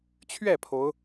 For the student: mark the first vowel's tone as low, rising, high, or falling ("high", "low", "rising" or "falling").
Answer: falling